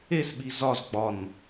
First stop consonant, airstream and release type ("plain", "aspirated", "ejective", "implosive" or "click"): implosive